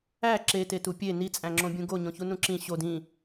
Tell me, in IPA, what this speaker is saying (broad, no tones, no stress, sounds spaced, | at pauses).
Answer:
æ ǁ e t e t u pʲ e n i t͡sʼ æ̃ ŋ͡ǁ õ bʲ ũ ɡ o ɲ õ ç u n ũ ǁ ĩ ɕ o d ĩ